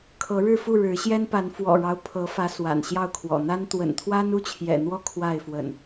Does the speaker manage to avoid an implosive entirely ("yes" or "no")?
yes